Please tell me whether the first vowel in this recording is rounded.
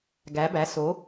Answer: no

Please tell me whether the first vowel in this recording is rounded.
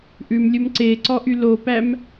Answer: yes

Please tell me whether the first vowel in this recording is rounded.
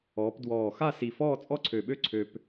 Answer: yes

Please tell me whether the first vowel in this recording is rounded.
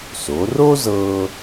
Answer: yes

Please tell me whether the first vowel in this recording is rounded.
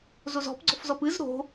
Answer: yes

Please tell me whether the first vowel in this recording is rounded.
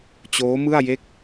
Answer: yes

